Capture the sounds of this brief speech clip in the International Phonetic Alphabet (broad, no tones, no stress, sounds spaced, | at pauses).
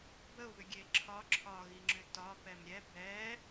b ə ʊ̯ β ʏ ɡʲ e ǁʰ ɒ ǁʰ ɒ ɣ i ŋ͡ǁ ʏ t ɒ p ɛ m ɾʲ ɛ b ɛ